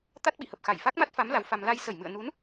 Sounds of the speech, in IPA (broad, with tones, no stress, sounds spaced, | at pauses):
t̪ a˦˥ t̚ ɓ ḭ˧˨ h ə˨˩ p̚ x a˧˩ j f a˦˥ k̚ m a˦˥ t̚ f a˨˦ m l a˨˦ w f a˧ m l a˧ j s ə˧˩ j m ɨ̰˧˨ ə̯ n u˨˦ n